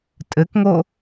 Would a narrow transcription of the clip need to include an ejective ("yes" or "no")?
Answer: yes